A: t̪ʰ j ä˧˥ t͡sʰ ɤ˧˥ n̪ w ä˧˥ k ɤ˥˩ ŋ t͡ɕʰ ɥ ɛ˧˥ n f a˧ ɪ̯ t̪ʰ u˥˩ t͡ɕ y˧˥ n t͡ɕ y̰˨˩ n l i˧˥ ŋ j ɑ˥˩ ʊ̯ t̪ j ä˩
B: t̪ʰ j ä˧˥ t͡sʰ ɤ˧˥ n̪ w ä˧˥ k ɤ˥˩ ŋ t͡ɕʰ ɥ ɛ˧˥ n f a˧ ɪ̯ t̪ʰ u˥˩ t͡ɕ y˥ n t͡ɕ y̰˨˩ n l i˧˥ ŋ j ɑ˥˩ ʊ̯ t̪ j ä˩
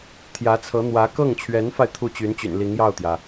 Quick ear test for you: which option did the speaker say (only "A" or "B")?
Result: A